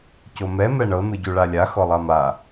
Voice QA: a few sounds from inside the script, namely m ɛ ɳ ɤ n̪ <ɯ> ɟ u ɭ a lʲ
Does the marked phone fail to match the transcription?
no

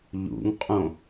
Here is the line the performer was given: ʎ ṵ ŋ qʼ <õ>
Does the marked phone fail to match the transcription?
no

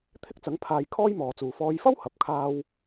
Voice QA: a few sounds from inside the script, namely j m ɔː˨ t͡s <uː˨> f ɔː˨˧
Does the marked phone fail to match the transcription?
no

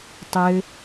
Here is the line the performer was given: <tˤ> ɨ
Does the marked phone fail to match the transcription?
no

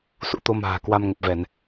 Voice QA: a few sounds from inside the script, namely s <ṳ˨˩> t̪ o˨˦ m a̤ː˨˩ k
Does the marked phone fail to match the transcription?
yes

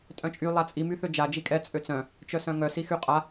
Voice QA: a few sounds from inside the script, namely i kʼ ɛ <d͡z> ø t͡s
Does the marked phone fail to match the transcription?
yes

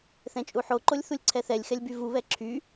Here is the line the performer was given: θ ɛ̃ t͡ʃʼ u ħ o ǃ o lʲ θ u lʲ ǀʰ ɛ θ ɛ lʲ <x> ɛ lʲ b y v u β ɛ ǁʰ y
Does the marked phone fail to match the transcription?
no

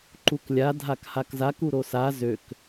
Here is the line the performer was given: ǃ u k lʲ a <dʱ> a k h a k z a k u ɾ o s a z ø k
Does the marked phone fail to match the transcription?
no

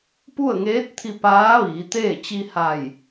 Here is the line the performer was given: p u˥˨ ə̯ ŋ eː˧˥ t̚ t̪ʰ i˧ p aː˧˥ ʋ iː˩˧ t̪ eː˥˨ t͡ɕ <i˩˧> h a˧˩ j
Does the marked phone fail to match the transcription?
yes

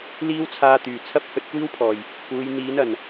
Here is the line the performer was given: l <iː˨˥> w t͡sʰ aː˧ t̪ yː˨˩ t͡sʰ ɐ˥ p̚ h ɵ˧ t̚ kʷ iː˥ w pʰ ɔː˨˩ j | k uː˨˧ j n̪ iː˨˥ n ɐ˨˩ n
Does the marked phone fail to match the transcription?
yes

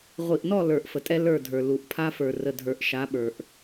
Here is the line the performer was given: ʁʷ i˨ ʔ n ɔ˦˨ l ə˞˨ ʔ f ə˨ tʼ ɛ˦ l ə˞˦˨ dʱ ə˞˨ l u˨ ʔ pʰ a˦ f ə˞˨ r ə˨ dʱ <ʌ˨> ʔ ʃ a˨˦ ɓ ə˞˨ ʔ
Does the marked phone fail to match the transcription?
yes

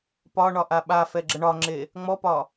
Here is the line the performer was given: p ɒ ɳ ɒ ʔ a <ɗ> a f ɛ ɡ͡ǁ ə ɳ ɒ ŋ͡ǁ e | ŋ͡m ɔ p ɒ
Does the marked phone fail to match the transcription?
yes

